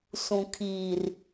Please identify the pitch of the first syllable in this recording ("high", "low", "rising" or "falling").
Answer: low